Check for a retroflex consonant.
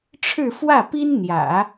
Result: present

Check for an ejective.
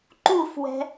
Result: absent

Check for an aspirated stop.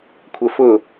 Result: present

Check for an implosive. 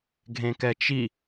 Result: absent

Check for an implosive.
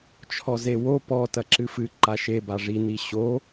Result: absent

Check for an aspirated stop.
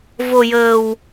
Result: absent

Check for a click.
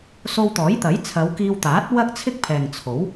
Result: absent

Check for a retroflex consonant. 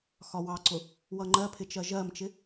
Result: absent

